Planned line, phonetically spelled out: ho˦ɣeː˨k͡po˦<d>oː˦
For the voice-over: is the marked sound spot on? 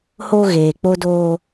yes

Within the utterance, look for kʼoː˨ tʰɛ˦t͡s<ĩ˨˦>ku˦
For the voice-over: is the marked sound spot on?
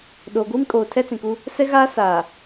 no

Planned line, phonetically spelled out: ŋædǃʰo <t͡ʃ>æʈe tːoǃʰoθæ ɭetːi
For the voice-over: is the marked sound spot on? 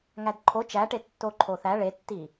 yes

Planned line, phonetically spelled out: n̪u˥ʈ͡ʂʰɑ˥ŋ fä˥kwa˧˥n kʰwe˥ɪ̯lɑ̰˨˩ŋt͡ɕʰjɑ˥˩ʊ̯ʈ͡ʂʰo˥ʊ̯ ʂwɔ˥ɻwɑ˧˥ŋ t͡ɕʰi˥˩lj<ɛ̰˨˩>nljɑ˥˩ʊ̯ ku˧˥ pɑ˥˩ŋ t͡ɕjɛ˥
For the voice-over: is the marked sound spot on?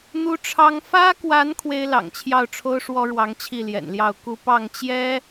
yes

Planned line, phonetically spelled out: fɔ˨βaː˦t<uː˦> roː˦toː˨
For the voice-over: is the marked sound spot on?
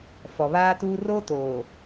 yes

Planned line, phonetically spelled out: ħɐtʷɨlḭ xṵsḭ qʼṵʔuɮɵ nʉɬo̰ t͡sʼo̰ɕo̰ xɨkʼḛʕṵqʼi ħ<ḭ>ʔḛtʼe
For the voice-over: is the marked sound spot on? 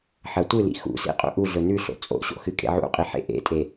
no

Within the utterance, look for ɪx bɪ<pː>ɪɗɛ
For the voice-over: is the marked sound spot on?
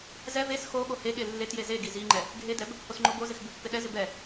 yes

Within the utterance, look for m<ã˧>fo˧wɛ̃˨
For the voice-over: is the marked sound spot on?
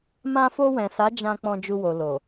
yes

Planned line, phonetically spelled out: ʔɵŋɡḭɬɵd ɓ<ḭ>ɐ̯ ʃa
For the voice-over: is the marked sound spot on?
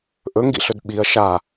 no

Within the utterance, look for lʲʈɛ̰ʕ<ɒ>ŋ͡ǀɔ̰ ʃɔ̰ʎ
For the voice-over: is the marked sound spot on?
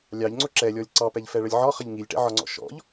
yes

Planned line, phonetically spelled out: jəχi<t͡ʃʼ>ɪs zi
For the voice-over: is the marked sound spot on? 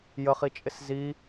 yes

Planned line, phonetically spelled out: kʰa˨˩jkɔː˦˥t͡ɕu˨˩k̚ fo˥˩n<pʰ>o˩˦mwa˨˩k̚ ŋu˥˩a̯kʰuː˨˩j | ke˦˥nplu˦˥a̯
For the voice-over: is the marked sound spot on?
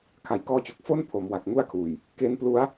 yes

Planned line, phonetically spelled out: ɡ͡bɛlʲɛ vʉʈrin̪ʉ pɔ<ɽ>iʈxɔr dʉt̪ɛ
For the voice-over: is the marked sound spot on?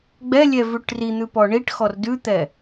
no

